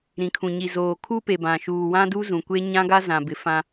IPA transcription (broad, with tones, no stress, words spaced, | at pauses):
ɾĩ˨kʰũ˨ɲi˨ zoː˨kʰu˦pe˨ bã˨ʃuː˨ wã˦du˦zũ˨ kʷe˦ ɲã˦ɡa˦ zã˨bɪ˨ fã˦